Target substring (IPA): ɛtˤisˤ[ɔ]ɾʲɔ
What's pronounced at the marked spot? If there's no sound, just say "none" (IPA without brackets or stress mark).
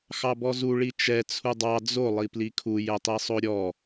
o